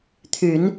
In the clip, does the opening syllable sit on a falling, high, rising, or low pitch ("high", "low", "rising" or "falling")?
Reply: low